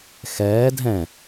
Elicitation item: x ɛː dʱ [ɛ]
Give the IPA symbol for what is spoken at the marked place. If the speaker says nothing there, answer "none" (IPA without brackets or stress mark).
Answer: ɛ̃